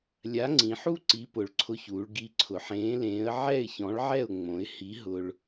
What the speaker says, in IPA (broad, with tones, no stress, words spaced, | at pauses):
lʲa˨˥ ŋ͡ǀĩ˩˧ħu˥˨ ǀi˨˥pʊ˩˧ɭǀʰʊ˧çuː˩˧ɭ ɡi˨˥ǀʰʊ˩˧ħẽː˨˥lẽː˨˥ə̯ ʕɛ˥˨ɪ̯çɔ̃˨˥ɭʕɛ˥˨ʊ̯ ŋ͡mõ˩˧ɪ̯hi˨˥ ɦʊ˧ɭ